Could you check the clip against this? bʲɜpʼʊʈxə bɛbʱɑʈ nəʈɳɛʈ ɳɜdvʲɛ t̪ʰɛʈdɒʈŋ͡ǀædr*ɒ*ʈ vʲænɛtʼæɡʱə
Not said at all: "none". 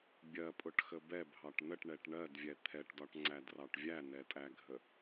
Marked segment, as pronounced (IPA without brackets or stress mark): ɑ